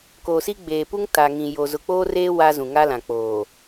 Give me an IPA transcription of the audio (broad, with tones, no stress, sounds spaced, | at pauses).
k oː˨ s i˦ ɡ͡b eː˨ p u˦ ŋ t a˨ ŋ ĩ˨ j o˨ z ʊ˨ k͡p oː˦ r eː˦ w a˦ z ũ˨ ŋ a˦ l ã˨ k͡p oː˨